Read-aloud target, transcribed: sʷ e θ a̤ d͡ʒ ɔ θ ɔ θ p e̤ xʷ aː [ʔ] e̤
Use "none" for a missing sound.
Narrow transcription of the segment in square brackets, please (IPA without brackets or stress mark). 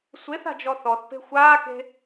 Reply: k